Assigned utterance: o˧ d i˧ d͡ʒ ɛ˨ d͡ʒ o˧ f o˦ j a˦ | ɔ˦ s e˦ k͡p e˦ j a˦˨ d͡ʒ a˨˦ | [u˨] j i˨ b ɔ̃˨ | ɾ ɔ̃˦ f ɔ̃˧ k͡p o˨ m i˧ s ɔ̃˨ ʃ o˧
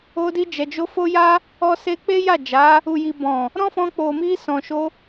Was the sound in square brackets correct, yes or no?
yes